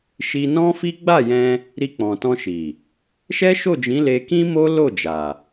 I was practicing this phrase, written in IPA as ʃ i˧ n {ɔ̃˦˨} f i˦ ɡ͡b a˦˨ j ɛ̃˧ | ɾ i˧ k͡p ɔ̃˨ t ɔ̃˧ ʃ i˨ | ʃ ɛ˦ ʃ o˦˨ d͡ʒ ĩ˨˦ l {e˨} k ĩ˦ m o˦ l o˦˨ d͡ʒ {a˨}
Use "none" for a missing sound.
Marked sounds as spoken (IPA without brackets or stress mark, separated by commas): ɔ̃˦, e˧, a˨